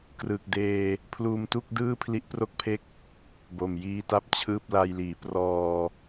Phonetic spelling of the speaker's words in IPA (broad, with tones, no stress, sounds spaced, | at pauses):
k r ɯ˨˩ k̚ d eː˧ | pʰ l uː˧ m t u˥˩ k̚ d ɯː˥˩ pʰ l i˦˥ ʔ p r o˥˩ k̚ pʰ e˥˩ k̚ | b o˨˩ m j iː˧ t a˦˥ p̚ t͡ɕʰ ɯː˥˩ p̚ l a˧ j l iː˩˦ p r ɔː˧